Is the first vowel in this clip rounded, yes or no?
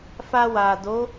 no